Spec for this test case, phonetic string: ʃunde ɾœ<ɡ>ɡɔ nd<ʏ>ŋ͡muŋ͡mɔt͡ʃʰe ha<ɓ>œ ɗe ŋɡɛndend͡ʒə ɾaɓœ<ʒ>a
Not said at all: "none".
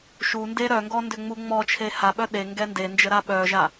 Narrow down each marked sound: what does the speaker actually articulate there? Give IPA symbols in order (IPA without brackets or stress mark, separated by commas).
ŋ, ʏ, ɓ, ʒ